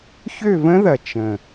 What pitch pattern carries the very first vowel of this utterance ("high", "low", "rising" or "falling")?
falling